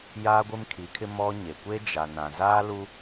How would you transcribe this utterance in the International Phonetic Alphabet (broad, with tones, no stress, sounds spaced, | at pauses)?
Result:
j aː˦ ɡʷ ɪ˦ m kʰ i˨˦ kʰ ɪ˦ m ɔ˦ ɲ e˨ kʷ e˦ d͡ʒ a˨ n ã˨ z aː˦ l u˦